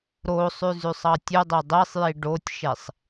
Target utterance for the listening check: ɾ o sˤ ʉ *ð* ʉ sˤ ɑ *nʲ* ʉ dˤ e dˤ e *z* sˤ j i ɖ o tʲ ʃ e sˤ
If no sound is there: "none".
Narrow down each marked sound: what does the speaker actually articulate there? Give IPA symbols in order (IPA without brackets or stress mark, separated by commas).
z, tʲ, none